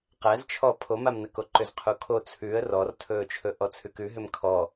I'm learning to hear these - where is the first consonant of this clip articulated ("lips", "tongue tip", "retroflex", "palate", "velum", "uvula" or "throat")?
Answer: uvula